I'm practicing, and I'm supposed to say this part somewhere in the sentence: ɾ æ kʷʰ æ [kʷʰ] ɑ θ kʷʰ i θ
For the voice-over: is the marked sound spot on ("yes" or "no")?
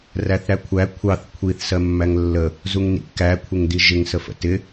yes